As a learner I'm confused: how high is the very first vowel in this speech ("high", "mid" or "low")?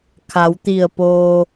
low